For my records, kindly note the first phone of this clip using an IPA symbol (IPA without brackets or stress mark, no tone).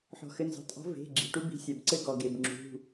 ħ